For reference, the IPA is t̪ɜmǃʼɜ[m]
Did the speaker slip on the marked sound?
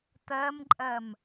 no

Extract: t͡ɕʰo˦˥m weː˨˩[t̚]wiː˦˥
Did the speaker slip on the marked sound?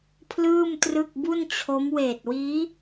no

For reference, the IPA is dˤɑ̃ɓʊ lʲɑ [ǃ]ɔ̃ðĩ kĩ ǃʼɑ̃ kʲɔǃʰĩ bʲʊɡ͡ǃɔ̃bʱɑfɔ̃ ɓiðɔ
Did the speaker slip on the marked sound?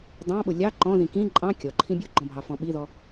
no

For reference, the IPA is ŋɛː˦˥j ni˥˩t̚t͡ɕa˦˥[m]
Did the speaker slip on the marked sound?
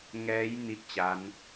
yes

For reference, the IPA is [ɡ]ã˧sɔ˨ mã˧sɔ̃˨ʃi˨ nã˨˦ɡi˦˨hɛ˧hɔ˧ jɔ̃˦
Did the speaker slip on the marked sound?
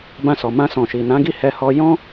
yes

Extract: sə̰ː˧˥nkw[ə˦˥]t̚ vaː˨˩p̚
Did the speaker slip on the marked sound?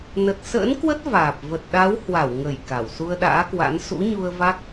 no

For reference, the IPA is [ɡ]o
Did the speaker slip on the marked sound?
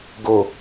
no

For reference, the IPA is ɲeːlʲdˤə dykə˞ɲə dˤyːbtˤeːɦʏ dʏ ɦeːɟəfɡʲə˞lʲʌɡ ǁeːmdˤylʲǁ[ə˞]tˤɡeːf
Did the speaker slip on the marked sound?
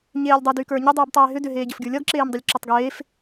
yes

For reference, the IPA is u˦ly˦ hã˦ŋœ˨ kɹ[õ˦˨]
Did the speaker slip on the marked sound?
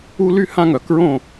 no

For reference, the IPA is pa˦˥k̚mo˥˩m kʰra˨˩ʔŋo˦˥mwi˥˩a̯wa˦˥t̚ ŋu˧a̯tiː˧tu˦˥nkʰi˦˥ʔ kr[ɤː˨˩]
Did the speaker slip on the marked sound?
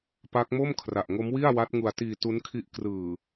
yes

